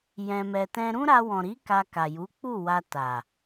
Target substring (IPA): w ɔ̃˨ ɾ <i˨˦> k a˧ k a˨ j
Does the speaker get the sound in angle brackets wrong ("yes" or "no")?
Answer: no